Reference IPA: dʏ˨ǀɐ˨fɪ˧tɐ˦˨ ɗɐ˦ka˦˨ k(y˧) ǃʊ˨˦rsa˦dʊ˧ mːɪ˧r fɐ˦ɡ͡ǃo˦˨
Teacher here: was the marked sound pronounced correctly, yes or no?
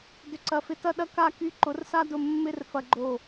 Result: yes